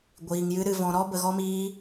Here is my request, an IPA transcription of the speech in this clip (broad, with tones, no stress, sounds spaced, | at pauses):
ɡʷ iː˧ ŋ j ɨ˦ ɾ ɨ˧ v ɔ̃˧ ɾ ɔ˦ b ə˧ ɣ ɔ˦ m iː˦